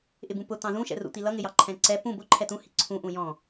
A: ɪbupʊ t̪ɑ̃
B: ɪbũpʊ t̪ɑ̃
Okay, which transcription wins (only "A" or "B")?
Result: B